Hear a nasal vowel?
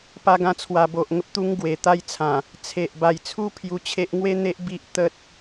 yes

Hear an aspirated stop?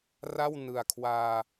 yes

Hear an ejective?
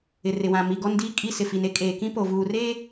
yes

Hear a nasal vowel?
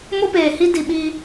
no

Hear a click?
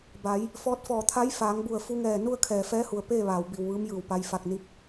no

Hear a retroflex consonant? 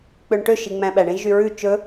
yes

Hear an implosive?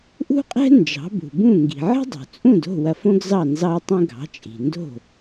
no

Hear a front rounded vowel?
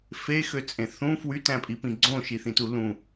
yes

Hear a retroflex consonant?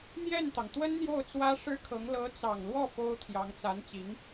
yes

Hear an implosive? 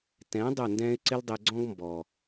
no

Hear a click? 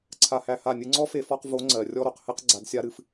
yes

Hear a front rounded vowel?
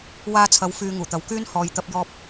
yes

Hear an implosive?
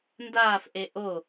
no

